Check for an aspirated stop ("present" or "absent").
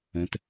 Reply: absent